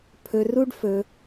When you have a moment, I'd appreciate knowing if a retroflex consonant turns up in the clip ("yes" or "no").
yes